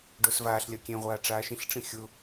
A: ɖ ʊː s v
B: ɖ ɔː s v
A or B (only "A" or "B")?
A